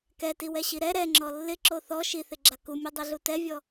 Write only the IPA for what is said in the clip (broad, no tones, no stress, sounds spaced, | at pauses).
k ɛ t i w ɛ ɕ i ɾ ɛ ɾ ɛ ŋ͡ǁ ɔ lː ɪ ǁ o θ ɔ ʃ i θ ɪ ɡ͡ǁ a k u mʲ u dˤ i ɮ u t ɛ vʲ ɔ